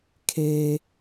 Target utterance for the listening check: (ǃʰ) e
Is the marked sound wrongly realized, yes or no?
yes